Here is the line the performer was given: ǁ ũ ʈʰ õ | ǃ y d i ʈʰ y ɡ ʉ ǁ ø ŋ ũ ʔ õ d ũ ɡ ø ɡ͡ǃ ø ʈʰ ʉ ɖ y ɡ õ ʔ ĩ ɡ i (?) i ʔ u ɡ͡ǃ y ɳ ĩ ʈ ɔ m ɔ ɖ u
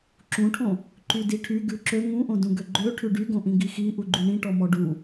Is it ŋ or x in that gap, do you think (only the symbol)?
x